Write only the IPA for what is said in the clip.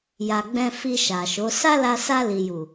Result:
ja˨ɡ͡bɛ̃˧ fi˧ʃa˨ʃo˨˦ sa˦la˧ sa˧li˨ju˨

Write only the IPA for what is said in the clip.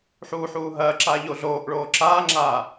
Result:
ħuːħuː ɦɐːǁaː ʎoɮoːʔɭoː ǁaːŋ͡ǁaː

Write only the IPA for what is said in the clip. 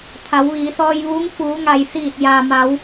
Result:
t̪ʰa˩˧wʋiː˩˧sɔː˧jʋuː˧˥ŋ fuː˩˧ŋa˩j siː˧˩t̚jaː˩ma˩˧w

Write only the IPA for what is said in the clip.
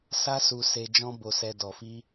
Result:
sa˦su˧ se˧ d͡ʒɔ̃˦bo˧sɛ˧ dɔ˨fi˧

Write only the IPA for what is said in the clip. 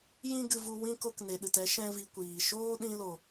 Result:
jĩ˦ɡɨ˧vu˧ wĩ˦ ko˧kne˨ɗɨ˨tɛ˦ ʃɛ̃˦vi˧kʷiː˨ ʃoː˦ɗĩ˧lo˨

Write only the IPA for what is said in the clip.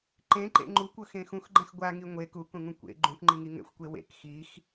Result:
ǃẽǃḛ ŋ͡ǃukʷɤxẽ xũxɡ͡ǃɛ̃x ɡʷaŋi ŋʷe kukũŋũ kʷḛ ɡ͡ǃũkŋ͡ǃiŋi ŋɛ̰xʷkʷe wḛk xix

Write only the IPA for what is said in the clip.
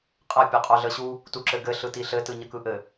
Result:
qʼə pʲœqʼœɮəɕu | tuǁɘɡɘ ɬɯtiɬɘ tɯɲəkɯʔɘ

